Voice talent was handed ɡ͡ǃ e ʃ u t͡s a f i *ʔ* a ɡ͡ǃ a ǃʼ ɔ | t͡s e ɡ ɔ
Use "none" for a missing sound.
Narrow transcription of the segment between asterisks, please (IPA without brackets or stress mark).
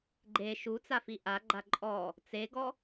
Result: ʔ